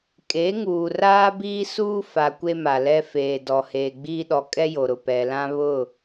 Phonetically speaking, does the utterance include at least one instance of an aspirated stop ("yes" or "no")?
no